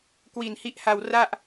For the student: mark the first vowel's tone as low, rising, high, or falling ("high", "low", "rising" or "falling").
low